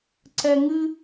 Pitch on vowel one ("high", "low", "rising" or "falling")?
high